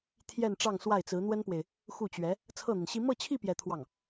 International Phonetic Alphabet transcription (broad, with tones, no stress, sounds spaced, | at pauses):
t̪ʰ j ɛ˥˧ n ʈ͡ʂ ɑ˥˧ ŋ s w a˥˩ ɪ̯ t͡s ɹ̩˧˥ n̪ w ə˥ n p w e˨ ɪ̯ | x u˥˩ t͡ɕ ɥ ɛ˧˥ | t͡sʰ ɤ˥˩ n̪ i˩ n ɕ i˥ m ɤ˥˧ t͡ɕʰ i˥˧ p j ɛ˥˧ t̪ʰ w ɑ˥˩ ŋ